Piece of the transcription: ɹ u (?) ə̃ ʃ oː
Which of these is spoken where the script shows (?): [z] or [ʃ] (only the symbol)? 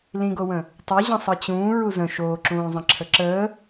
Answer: z